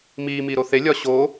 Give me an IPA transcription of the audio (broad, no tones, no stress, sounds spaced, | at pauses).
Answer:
m iː m iː ɾ o θ e lʲ ɒ ɕ o